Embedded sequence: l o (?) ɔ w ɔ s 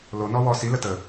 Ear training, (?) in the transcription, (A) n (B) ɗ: A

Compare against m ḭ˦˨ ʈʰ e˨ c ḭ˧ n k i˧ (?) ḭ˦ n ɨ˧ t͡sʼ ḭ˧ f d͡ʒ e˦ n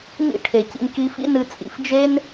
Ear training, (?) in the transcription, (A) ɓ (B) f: B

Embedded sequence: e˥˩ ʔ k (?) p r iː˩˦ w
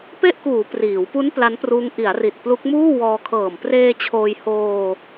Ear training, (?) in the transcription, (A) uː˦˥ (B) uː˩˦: B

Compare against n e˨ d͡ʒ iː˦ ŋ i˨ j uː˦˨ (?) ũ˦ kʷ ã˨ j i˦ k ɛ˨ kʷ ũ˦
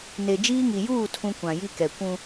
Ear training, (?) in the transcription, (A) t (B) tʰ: B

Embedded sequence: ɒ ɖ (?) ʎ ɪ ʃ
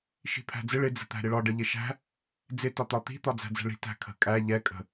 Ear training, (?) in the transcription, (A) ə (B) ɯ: A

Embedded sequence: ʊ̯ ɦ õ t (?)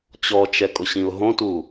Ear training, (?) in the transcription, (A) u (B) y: A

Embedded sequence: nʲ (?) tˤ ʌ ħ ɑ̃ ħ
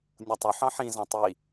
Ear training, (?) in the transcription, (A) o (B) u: A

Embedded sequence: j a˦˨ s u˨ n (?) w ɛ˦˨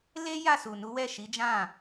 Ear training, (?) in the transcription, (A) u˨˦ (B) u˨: A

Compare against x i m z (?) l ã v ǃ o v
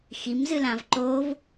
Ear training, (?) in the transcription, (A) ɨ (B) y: A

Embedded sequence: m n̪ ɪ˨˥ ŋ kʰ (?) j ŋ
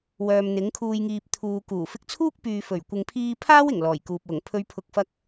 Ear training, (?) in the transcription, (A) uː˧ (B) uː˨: B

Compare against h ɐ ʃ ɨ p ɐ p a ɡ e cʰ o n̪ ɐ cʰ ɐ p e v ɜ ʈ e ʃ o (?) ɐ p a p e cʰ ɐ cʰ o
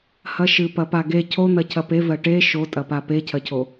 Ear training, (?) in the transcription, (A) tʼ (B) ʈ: A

